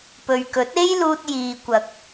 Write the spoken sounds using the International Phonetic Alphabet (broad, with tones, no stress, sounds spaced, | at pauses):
p ɵ˨ ɥ k ɵ˨˥ t̚ e˥ j l uː˧ t̚ j iː˨ kʷ ɐ˨ k̚